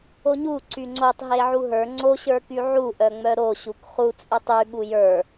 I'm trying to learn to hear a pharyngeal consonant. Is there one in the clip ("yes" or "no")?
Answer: yes